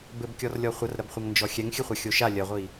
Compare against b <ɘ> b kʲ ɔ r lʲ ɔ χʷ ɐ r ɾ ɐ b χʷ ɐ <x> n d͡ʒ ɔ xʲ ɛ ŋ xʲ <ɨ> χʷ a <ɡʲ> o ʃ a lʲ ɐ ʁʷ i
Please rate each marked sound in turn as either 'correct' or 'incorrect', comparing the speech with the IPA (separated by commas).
correct, incorrect, correct, incorrect